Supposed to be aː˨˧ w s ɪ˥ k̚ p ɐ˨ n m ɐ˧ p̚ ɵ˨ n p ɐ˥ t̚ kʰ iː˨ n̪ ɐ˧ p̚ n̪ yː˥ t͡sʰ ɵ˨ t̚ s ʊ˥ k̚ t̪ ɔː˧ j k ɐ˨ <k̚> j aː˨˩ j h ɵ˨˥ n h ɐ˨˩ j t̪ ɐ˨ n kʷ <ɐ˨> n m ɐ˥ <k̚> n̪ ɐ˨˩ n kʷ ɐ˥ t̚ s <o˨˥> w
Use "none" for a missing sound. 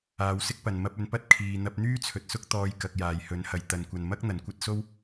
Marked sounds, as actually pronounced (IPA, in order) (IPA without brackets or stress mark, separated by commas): k̚, ɐ˨, k̚, o˥